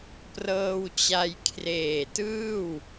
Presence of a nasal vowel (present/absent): absent